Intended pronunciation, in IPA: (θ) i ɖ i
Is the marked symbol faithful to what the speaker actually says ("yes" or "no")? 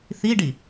yes